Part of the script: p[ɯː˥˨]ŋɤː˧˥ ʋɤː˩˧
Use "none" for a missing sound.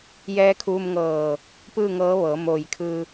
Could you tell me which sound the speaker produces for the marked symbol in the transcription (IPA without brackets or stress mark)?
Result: ɯː˥˨